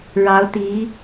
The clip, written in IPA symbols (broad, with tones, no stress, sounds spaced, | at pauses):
ɻ ɑ˧˥ ʊ̯ t̪ i˧˥